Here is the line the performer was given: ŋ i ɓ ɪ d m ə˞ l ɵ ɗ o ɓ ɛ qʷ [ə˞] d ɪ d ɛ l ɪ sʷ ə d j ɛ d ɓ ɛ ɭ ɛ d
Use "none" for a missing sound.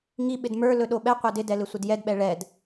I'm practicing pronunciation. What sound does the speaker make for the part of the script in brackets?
ə˞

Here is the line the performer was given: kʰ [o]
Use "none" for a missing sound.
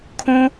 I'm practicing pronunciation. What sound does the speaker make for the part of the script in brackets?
õ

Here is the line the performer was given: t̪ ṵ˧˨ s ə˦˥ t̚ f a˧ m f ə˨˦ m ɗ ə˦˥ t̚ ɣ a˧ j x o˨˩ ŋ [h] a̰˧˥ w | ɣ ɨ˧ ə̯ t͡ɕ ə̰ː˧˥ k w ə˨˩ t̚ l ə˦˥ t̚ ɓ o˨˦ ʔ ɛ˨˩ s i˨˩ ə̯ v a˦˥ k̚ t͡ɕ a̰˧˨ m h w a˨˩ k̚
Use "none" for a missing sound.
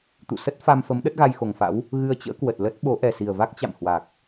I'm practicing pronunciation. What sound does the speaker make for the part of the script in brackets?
f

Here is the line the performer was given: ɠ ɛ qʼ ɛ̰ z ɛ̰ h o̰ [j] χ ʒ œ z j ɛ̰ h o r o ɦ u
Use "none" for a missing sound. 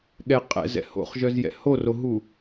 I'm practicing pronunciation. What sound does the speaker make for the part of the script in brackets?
none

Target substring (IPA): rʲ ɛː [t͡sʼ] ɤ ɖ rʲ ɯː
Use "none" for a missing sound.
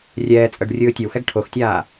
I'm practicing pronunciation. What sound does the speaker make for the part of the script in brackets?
t͡sʼ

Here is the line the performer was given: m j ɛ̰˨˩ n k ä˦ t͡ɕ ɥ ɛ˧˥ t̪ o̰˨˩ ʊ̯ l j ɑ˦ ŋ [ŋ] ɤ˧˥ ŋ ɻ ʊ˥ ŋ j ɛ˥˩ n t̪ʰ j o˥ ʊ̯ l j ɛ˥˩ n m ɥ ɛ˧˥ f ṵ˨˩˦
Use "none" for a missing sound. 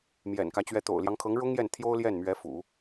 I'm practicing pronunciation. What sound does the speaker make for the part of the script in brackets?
kʰ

